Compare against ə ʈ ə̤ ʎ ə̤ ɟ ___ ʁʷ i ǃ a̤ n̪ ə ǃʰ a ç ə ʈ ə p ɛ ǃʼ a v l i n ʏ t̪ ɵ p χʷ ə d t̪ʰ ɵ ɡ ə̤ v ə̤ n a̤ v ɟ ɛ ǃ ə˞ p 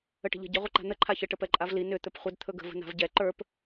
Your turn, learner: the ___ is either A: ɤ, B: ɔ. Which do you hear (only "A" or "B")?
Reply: A